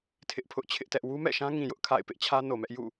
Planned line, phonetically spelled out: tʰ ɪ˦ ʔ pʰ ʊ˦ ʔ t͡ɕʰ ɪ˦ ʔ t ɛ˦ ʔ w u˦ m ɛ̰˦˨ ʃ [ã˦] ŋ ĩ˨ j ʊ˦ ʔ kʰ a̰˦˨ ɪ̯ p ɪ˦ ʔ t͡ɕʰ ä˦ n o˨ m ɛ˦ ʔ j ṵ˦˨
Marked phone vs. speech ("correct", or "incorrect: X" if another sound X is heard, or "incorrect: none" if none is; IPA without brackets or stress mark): correct